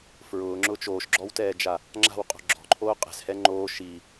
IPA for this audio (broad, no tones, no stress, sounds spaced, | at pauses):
f ɹ ʊː ŋ͡ǁ ʊː t͡ʃ oː ʃ ɡ͡ǁ ɔ w t ɛː d͡ʒ a | ŋ͡ǁ a̤ w qʼ o̤ ɡ͡ǁ ɔ̤ ǃʰ oː qʼ ɛ̤ s h ɛ ŋ͡ǃ oː ʃ i